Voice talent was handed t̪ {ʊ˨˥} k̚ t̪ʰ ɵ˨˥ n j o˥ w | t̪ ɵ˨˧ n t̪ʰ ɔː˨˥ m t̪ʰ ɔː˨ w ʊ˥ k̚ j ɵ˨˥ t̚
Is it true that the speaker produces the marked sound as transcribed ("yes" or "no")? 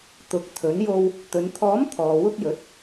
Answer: yes